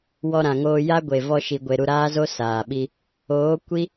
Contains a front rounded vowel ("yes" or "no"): no